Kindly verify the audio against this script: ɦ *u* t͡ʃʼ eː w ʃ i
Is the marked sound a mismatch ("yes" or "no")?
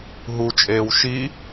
no